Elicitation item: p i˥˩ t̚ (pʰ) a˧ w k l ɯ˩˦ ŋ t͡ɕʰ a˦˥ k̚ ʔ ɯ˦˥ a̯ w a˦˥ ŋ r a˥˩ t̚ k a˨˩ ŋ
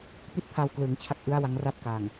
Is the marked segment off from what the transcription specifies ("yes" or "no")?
no